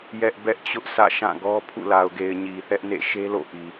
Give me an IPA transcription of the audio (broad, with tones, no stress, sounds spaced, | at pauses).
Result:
j ɛ˦ ʔ b ɛ˦ ʔ t͡ɕ ʊ˦ ʔ sʰ ä̰˦˨ ʃ ã˦˨ ɡ ɔ˦ pʰ ṵ˦˨ l a˨ ʊ̯ ɡ e˨ ɪ̯ ɲ i˨ θ ɛ˦ ʔ n ḛ˦˨ ʃ e˦ l o̰˦˨ ʔ i˨